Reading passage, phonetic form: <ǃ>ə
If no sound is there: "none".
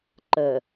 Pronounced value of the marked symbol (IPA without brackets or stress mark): ǃ